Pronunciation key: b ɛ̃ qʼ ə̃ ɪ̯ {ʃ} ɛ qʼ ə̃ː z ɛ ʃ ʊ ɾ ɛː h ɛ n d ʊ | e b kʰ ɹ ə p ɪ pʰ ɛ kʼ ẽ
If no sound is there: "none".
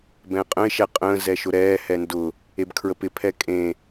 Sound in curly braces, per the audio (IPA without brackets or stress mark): ʃ